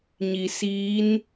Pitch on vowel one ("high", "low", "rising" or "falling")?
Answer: low